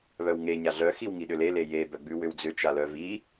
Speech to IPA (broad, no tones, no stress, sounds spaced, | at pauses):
β œ w ŋ e ɲ a ɮ œ x i w ŋ i ɗ ʏ l e l e j e b œ ɡ͡b ʉ w ʏ w d͡z ʏ t͡ʃ a l œ v i